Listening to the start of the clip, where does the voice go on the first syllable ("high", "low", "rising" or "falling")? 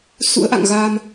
rising